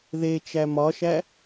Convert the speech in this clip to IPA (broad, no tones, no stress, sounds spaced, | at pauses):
ð e t͡ʃ æ m ɒ ʃ æ